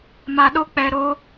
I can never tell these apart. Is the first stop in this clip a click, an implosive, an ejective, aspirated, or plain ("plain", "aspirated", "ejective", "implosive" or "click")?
implosive